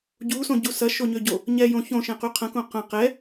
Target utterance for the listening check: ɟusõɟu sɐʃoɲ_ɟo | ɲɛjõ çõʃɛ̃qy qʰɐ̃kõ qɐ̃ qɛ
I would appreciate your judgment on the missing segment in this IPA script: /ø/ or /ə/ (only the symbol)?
ø